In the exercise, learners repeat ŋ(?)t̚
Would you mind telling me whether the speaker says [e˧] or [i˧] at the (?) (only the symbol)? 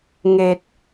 e˧